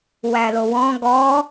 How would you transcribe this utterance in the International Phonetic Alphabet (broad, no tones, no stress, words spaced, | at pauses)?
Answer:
wælowɔ̃ ɡɔ